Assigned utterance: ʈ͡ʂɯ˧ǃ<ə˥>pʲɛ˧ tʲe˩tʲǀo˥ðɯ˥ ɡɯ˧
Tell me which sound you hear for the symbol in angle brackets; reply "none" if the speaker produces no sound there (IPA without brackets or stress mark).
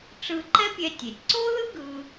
ɛ˥